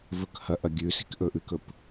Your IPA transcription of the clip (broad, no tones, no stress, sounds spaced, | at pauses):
v ɵ k h ɐ ʔ ɐ ɡʲ ʉ s i̤ k ʔ ɵ ʔ ʉ k ɵ p